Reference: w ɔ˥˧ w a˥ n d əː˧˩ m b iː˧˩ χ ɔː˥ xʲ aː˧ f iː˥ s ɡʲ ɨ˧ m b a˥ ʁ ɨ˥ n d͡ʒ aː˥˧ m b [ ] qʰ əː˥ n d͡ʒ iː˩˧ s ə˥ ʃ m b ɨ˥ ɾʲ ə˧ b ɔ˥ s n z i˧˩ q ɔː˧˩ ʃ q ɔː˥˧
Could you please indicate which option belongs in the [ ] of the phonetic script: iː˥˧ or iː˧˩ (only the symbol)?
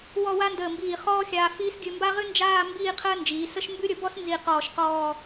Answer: iː˥˧